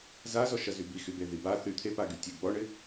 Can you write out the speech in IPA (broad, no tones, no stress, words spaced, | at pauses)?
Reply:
zazɔʃɐ zybixybe ðiba θy t̪ʰepaɡy tʲe ɡ͡bɔɳɪ